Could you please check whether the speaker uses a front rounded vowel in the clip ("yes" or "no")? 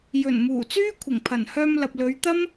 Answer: yes